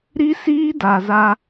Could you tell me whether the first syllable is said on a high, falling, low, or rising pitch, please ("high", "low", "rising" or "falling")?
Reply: high